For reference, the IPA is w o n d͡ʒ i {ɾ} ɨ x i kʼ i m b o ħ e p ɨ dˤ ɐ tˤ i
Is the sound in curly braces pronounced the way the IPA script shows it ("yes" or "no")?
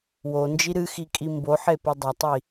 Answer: yes